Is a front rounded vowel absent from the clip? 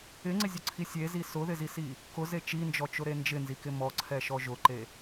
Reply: yes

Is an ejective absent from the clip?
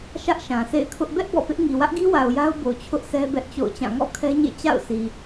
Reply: yes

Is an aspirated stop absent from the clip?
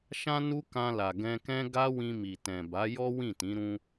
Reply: yes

